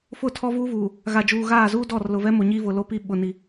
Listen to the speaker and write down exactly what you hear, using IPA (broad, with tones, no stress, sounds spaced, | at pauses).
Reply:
f ʊ˦˨ tʰ ɔ˦ v uː˦ v uː˨ | ɣ a˨ d͡ʒ uː˨ ɣ aː˦˨ z uː˦ d ɔ˦˨ r l ʊ˨ v ɛ˦ m o˨ ɲ iː˦ v ʊ˨ l o˦ p i˦˨ ɓ ʊ˨ n i˦